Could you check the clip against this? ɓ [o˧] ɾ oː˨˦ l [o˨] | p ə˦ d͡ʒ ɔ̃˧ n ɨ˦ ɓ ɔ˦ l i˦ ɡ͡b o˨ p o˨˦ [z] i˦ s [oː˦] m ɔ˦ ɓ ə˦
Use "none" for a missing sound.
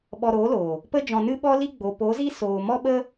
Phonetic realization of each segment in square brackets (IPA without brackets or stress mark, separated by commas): ɔ˧, oː˨, z, oː˨